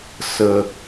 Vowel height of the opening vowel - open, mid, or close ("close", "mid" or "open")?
mid